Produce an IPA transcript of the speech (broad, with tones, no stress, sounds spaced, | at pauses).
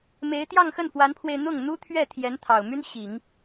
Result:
m e˧˥ ɪ̯ t̪ j ɑ˥˧ ŋ x ə˥˩ n f w a˧˥ n pʰ w e˧ ɪ̯ n̪ ʊ˥˩ ŋ n̪ u˥ t̪ʰ ɥ ɛ˥˩ t̪ʰ j ɛ˧˥ n t̪ʰ ɑ˨˩ ʊ̯ m y˥ n ɕ i˨˩˦ ŋ